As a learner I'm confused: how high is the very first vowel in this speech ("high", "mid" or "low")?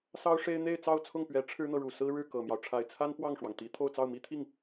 low